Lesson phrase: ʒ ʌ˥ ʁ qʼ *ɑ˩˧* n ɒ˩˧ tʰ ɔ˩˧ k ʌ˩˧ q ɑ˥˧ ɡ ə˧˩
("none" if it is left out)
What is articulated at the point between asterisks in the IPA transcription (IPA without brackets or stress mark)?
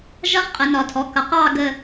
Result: ə˩˧